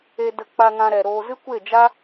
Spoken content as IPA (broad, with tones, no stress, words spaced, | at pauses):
e˧də˧ k͡pa˧ŋã˧ɾɛ˨ɾoː˧ zɨ˦kʷe˦˨d͡ʒa˦